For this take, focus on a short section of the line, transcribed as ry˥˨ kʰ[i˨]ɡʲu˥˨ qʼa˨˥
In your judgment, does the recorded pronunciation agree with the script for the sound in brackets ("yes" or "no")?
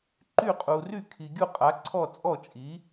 yes